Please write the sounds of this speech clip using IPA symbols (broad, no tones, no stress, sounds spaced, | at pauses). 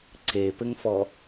ǀ e p ɘ ŋ f ɔ